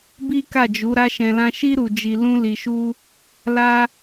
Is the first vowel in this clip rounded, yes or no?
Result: no